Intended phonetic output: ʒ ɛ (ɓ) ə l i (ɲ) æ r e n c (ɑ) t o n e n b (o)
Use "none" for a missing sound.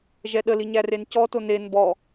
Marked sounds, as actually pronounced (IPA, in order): ɗ, ɲ, ɔ, ɔ

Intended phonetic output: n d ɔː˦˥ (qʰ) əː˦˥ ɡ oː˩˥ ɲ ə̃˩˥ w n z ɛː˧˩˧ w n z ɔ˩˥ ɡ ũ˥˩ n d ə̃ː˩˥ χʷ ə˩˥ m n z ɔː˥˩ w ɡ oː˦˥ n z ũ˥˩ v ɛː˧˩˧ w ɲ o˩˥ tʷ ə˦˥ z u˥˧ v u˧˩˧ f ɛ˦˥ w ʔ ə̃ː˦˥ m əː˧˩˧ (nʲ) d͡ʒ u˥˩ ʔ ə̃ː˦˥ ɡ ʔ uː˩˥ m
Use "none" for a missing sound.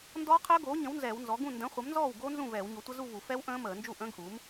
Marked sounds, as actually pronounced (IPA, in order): qʰ, n

